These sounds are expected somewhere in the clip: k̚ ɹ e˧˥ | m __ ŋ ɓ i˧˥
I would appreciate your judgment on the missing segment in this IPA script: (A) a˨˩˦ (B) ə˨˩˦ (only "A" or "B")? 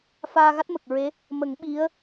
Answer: B